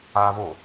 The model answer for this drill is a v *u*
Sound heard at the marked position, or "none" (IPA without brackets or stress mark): o